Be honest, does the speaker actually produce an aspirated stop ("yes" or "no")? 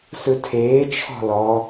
yes